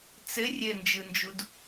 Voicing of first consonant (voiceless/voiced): voiceless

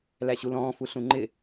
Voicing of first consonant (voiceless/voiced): voiced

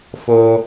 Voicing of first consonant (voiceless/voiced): voiceless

